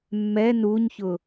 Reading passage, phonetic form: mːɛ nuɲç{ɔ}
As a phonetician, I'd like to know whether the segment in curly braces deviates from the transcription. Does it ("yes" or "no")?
yes